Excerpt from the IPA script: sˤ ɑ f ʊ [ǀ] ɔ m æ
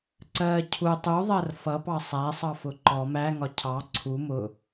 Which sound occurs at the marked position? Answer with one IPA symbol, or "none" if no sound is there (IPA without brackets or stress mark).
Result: ǃ